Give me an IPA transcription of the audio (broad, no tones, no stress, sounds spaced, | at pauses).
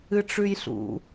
ɨ ʈ͡ʂ ʉ j ɬ ṵ